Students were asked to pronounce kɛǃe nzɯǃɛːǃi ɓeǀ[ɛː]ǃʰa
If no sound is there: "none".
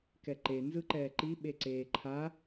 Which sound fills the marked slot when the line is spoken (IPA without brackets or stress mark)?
eː